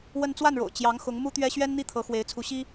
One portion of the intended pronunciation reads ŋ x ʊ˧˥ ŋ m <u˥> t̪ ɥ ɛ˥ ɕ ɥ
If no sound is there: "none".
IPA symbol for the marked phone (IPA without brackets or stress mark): u˥